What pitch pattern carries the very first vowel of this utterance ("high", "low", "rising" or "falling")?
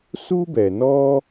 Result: high